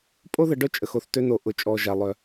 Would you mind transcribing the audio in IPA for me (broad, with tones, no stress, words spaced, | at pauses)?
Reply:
pʼo˥ðə˨ ɖœ˥t͡ʃʼə˨x o˨θtø˦no˨ ʔʊ˨t͡ʃʼɔ˨ ʒa˩lˠœ˩